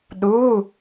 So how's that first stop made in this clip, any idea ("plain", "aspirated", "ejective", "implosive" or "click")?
implosive